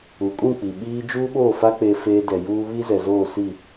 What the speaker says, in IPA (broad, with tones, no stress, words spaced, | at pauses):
u˨kʼũ˦˨k͡pi˨ ɓiː˦ d͡ʒuː˦ɓoː˦˨fa˦ k͡pe˦feː˦ dɛ˨juː˦ βi˦zɛ˨zoː˦˨si˦˨